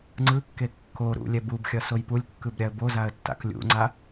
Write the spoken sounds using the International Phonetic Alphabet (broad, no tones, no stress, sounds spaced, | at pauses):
ŋ͡ǀ ɯ kː e kː o ɾ ṵ lʲ ɛ b u b xʲ ʌ s o j p u lʲ kː ɯ b ɾʲ a ə̯ b o z a ə̯ tː a̰ k lʲ ṵ ŋ͡ǀ a